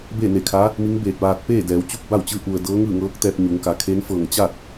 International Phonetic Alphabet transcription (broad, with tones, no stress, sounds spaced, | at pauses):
b eː˥˨ n e˧˩ kʰ a˧˥ | m i˧˥ ŋ b eː˧˩ t̚ ʋ aː˧ t̚ p eː˥˨ d ɛː˩˧ w t͡ɕ u˥˨ p̚ b a˥˨ w t͡ɕ ɯː˧˥ ʔ u˩ ə̯ d ɤː˧˥ ŋ ɯː˥˨ ŋ ɤː˧˥ k̚ t̪ ɛː˧ p̚ ɲ u˩˧ ŋ k a˩˧ kʰ e˧˥ n f ɤː˧˩ ŋ t͡ɕ a˥˨ t̚